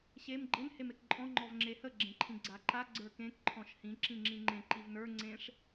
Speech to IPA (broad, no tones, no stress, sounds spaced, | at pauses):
ɕ e m ɡ͡ǃ ɘ n h e m e k ǃʼ ɔ̃ ŋ͡ǃ ɔ v ŋ͡ǁ e h ə ɡ͡ǁ ẽ ǃʰ ĩ ɡ͡ǀ a ǃ a ɡ͡ǀ ə˞ k ẽ k ǃʰ ɔ̃ ʃ h ĩ ǁ ĩ ŋ͡ǁ ĩ ŋ͡ǃ ẽ ǃ i v n ə˞ ŋ͡ǀ ẽ ʂ